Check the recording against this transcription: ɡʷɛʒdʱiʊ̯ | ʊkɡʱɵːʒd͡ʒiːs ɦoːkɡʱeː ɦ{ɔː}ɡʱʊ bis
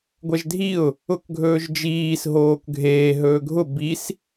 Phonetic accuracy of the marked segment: incorrect: ɵː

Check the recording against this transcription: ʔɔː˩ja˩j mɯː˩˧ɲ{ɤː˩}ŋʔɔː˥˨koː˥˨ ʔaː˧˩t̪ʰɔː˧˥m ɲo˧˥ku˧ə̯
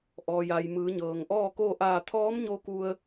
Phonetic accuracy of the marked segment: correct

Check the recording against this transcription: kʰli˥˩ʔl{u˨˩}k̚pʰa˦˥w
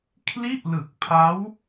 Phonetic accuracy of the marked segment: incorrect: ɯ˨˩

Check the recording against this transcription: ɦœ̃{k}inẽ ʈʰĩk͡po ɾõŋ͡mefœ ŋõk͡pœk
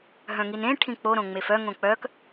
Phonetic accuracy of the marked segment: incorrect: ŋ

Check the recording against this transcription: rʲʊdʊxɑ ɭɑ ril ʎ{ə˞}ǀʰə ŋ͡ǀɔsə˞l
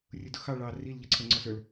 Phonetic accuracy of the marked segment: incorrect: ʌ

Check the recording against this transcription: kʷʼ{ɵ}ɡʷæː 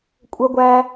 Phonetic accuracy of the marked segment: incorrect: ə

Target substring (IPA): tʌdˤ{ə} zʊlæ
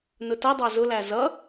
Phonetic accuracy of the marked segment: incorrect: ɑ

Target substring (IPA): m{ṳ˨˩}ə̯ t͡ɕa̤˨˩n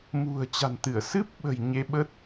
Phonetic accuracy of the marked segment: correct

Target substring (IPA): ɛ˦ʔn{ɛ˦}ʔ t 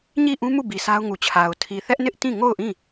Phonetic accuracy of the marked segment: incorrect: ɪ˦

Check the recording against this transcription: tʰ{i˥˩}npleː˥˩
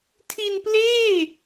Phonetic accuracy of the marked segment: incorrect: i˧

